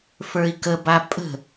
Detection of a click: absent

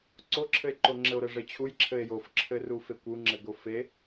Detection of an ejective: absent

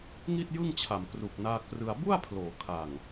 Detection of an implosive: absent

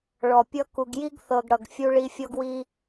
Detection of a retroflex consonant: present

